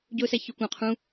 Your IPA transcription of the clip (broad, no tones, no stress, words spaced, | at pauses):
ɟʊːsæçʊ kʷɑ̃ qʰũ